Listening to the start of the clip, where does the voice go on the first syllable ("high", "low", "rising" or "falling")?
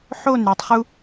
falling